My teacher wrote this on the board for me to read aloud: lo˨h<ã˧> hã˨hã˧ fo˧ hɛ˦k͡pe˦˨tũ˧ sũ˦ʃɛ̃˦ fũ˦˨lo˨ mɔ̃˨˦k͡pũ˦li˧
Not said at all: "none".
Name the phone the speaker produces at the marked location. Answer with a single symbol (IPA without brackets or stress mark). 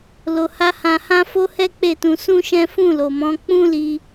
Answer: a˧